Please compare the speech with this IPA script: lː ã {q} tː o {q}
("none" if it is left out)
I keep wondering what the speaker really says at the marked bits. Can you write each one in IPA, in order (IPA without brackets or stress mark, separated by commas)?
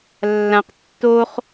q, χ